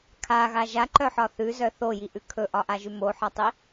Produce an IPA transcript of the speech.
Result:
kʰaɣa ʒaǃœħɒ θʉzœ θojiʔʉ kʰɵʔɒʔaʒʉ moħɒtˤi

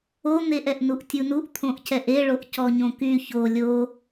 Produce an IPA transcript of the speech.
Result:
on̪eʔ ɛʔnuʔtʲunuʔ t̪ʰõʔcɛʔeɭoʔ cɔɲõky ço lʲo

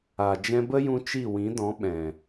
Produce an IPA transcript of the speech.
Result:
a˨ d͡ʒɛ̃˧bə˦jũ˧ t͡ʃi˦˨wĩ˨˦dɔ̃˨˦ ɓɛ̃˨

